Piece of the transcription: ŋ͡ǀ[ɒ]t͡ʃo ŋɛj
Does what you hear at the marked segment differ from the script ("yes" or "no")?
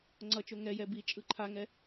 yes